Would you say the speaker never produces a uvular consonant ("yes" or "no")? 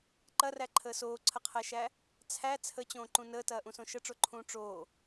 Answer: no